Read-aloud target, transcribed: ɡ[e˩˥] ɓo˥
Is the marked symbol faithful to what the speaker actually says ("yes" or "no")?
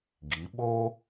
no